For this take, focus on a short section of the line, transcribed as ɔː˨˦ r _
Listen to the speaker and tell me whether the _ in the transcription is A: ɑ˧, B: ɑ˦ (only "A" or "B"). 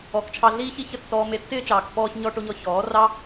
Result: B